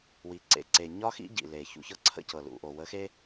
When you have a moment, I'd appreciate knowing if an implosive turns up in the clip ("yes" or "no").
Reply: no